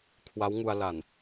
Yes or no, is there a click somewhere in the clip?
no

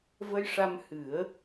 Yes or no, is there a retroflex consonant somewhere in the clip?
yes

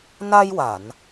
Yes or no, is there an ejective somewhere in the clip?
no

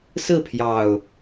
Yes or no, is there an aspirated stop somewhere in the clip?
yes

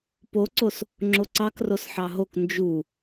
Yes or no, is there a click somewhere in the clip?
yes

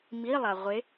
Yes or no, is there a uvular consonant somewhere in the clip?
yes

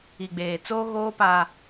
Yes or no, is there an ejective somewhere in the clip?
no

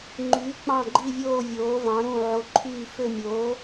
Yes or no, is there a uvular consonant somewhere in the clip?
no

